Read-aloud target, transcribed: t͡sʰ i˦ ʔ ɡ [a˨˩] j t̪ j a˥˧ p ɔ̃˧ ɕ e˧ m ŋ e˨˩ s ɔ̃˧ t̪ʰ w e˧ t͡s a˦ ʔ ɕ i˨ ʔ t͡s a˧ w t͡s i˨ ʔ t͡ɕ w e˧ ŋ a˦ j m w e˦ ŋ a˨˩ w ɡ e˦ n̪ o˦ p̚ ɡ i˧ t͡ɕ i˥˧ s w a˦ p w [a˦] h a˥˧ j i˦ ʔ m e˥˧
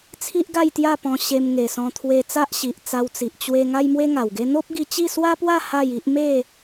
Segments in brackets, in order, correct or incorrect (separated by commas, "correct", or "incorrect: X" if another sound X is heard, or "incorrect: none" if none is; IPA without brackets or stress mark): incorrect: a˥˧, incorrect: a˥˧